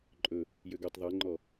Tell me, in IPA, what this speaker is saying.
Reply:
ǃʼ ɵ | j ø ɡ ø tˤ ðˤ e ŋ͡ǃ ɔ

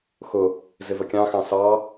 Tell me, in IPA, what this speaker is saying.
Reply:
x ʊ | z ɪ v ə kʲ ɑ̃ x ɑ̃ s ɑ

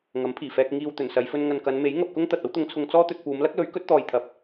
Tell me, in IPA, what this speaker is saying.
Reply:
ŋ ɐ˨˥ m pʰ iː˨˩ f ɛː˧ k̚ ŋ iː˨ w t̪ ɵ˨˩ n s ɐ˨˧ j f ɵ˧ n ŋ ɐ˨ n k ɐ˨˧ n m e˨˥ j ŋ ɐ˧ p̚ k ʊ˥ ŋ t̪ ɐ˨ t̚ ɐ˥ w t̪ ʊ˨˧ ŋ t͡sʰ ʊ˧ ŋ t͡s ɔː˥ t̪ ɵ˧ t̚ p uː˨˧ m l ɐ˥ k̚ l ɵ˨˥ ɥ k ɵ˨˥ t̚ t̪ ɔː˨ j t̪ʰ ɐ˨ p̚

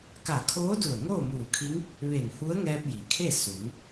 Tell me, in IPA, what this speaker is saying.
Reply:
k a˧˩ kʰ oː˧˥ d u˧˩ ə̯ ŋ oː˥˨ m uː˧˩ kʰ i˧˥ ŋ | ʋ e˧˩ n h u˧˥ ə̯ ŋ ɛː˧ p̚ j i˩˧ kʰ e˥˨ s u˩˧ ŋ

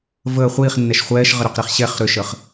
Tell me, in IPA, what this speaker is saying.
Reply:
v əː χʷ iː χ nː ɛ ʃ χʷ ɛː ʃ ʁ ə ɾ ʏ q ɾ i χ ɕ ɛ χ ɾ ʏ ʃ ə χ

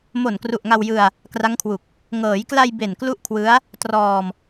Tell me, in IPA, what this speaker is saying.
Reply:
m o˨˩ n k r u˨˩ ʔ ŋ a˧ w j ɯ˧ a̯ | k r a˦˥ ŋ kʰ w u˨˩ k̚ | ŋ ɤː˩˦ j k l a˧ j b e˨˩ n k l u˦˥ ʔ kʰ w ɯ˦˥ a̯ | t r ɔː˧ m

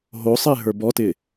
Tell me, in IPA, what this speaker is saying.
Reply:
ɦ o sˤ ɪː ɦ ə˞ b ɔ t ɪ

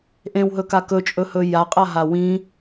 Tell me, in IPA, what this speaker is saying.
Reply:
ʔ ẽ w ɦ ɵ k a k ɵ t͡ʃʼ ɵ h ɵ j a qʼ a ɦ a w ĩ

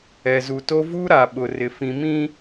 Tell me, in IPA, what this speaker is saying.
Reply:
ɛ˨ z u˨ t o˦ v u˦ ɾ a˨ ɓ ʊ˨ r ɪ˨ f ĩ˨ m ĩ˦

